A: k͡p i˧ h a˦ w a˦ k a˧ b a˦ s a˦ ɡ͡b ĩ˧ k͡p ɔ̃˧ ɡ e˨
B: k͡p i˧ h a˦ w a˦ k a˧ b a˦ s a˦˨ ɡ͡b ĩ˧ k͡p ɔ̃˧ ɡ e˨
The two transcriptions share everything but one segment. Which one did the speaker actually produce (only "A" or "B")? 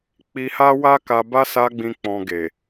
A